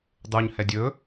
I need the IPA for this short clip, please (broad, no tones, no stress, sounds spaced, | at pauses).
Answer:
dˤ u ɲ h ɛ dʲ ɵ